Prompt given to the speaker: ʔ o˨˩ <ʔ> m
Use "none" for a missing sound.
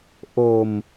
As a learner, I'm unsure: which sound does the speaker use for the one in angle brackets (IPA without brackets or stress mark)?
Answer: none